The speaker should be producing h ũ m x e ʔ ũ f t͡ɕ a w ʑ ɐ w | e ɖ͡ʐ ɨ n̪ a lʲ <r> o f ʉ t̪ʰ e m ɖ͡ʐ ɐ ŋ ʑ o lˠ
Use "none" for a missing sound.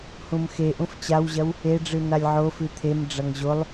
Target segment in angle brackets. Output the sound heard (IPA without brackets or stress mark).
ʕ